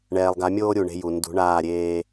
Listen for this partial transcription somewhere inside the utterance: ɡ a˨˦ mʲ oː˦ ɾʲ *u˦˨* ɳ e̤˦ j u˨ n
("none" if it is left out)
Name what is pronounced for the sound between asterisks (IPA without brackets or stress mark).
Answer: u˨